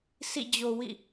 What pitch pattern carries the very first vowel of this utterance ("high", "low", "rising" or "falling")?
falling